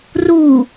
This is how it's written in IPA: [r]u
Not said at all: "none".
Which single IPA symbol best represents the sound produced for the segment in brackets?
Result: r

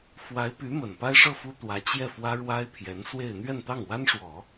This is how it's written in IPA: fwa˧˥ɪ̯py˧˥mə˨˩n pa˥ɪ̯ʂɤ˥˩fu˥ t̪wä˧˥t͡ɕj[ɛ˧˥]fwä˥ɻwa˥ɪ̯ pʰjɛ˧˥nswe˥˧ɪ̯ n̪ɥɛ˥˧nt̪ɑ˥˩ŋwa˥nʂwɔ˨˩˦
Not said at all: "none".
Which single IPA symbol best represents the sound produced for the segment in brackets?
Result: ɛ˥˩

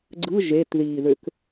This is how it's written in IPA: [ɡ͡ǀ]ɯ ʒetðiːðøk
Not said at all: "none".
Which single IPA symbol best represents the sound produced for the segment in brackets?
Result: ɡ͡ǀ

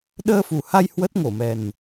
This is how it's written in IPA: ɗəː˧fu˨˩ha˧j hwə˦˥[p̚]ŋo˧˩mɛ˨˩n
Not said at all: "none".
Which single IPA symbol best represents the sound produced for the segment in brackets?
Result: t̚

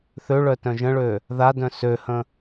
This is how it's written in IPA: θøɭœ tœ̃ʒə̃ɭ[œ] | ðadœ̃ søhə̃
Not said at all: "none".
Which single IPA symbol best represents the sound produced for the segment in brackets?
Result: ø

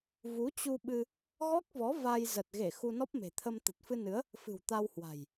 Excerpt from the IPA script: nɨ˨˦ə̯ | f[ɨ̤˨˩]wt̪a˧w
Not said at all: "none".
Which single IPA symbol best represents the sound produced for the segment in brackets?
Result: ɨ̤˨˩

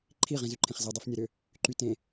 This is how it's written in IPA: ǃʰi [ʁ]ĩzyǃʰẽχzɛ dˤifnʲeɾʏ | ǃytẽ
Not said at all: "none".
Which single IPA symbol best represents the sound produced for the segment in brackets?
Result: ʁ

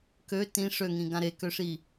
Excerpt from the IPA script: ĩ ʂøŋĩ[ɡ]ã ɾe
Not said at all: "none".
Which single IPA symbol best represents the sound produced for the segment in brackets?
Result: ɡ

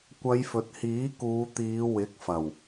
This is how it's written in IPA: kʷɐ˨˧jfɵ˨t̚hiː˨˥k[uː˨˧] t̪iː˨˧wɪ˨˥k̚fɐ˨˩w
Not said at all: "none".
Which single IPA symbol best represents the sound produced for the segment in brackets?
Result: uː˨˧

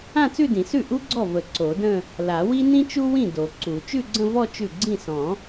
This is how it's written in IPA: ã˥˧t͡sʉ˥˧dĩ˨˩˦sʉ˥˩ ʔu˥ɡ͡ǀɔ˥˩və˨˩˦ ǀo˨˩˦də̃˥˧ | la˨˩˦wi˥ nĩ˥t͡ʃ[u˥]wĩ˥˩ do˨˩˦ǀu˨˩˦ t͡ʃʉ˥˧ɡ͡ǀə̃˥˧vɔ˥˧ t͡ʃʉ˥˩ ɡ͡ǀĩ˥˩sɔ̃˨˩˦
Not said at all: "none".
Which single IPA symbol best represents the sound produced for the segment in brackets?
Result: u˥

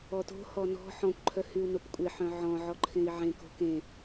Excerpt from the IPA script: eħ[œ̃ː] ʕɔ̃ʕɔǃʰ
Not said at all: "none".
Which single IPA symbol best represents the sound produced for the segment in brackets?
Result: œ̃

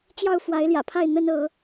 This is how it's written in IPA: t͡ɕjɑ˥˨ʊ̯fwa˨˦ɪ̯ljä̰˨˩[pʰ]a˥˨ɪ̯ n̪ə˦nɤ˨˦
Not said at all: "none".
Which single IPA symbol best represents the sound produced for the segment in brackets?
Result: pʰ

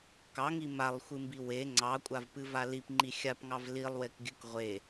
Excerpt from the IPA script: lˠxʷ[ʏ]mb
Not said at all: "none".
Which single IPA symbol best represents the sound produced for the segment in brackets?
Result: ɨ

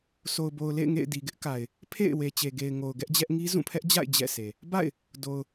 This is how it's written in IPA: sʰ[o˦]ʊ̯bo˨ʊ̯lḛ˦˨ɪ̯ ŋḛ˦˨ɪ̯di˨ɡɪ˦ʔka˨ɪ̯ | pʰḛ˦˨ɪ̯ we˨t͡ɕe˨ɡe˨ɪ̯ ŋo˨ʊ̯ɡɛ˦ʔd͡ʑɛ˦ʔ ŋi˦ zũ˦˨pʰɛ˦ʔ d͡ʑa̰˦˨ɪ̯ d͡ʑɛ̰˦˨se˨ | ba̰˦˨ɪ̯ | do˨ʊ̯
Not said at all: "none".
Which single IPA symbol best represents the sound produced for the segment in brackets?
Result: o˨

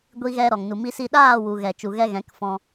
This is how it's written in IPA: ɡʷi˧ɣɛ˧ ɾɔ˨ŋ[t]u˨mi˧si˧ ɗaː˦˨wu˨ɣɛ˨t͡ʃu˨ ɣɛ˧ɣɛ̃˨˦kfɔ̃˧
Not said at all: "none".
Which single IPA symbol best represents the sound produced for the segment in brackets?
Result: n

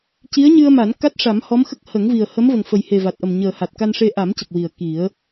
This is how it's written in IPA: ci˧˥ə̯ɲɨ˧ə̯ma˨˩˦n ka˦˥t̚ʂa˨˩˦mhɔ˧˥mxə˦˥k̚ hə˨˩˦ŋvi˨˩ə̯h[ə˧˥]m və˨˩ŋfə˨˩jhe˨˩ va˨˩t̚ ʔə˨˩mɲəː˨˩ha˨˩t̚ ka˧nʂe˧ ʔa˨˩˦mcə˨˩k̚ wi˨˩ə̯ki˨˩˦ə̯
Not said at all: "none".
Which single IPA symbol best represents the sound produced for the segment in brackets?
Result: ə˧˥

